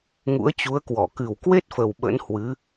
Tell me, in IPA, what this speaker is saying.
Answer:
ŋ ṵ˧˥ ə̯ t͡ɕ u˨˦ ə̯ k w ɔ˧˩ k ɨ˨˩ w k w e˦˥ t̚ f ə˨˩ w ɓ ə̰˧˥ n h w ɨ˨˦

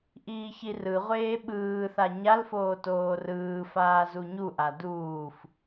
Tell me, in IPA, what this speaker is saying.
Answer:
ʔ iː ç i r ɯ ʁʷ eː ɓ ɯː θ a ɲ a l f oː t oː r ɯː f aː z u ɲ u ʔ a d uː f

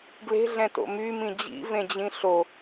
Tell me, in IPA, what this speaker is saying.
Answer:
ɡ l e̤ ɮ ɛ̃ t o̰ m y m ĩ d͡ʑ ḭ v ẽ d͡ʑ ĩ ɬ o

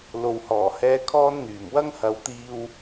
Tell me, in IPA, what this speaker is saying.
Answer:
l o˨ w h ɔː˨˩ h ɛː˥ kʰ ɔː˥ n n̪ yː˨˩ m w ɐ˥ ŋ h ɐ˨˧ w t̪ iː˧ w

